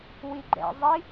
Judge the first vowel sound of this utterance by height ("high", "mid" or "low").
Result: high